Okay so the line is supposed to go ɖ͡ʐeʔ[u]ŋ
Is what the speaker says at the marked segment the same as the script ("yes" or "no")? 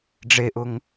no